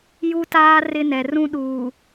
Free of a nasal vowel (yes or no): no